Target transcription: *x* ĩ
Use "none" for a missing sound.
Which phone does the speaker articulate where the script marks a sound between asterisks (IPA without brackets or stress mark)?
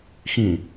x